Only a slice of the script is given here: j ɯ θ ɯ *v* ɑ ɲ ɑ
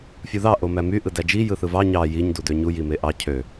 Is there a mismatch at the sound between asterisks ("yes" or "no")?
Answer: no